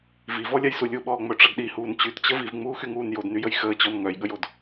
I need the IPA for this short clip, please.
v i v ɔ lʲ a j s u lʲ u ɓ ɔː ŋ͡m œ ʈ͡ʂ ʌ d ɗ i h uː n t͡ɕ y t t͡ɕ ə v i v ŋ͡m uː x y ŋ uː n j o d n y j ə j x əː t͡ɕ ɔ n ŋ œ j ɠ ə j o d

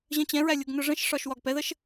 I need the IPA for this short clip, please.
ʑ ə̃ t͡ɕ ɛ̃ ɹ æ lʲ ʊ ɡ n ʊ ʐ ə̃ ʃ ʂ ɒ ʃ w ɒ ɡ p ɛ ð ə ʃ

